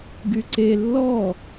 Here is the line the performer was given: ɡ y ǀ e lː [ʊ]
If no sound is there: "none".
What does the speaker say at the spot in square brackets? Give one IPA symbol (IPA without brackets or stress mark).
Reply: ɔ